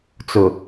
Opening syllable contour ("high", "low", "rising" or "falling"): low